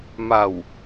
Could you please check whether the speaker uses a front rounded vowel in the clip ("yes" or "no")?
no